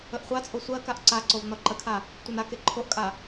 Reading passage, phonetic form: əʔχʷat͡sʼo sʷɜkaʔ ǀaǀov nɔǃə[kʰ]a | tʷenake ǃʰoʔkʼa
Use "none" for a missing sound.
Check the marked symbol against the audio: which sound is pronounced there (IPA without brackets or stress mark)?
kʰ